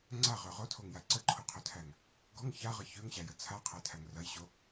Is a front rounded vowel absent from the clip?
no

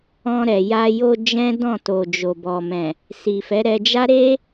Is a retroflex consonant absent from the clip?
yes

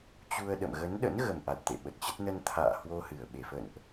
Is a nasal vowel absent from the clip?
yes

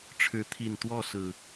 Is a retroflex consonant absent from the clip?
no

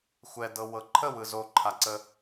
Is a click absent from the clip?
no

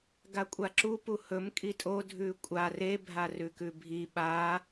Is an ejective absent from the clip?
no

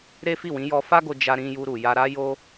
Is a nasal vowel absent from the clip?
no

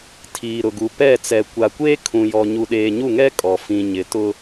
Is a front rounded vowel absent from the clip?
yes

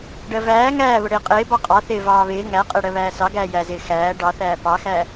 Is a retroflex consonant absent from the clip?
no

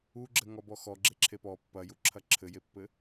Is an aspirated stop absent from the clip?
no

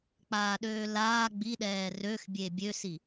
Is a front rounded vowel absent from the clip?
no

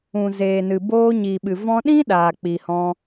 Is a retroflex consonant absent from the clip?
yes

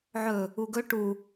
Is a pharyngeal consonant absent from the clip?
no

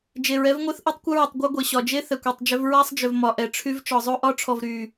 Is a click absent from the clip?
yes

